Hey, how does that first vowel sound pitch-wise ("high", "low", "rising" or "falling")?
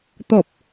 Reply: low